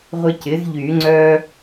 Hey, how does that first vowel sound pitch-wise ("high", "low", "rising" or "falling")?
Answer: high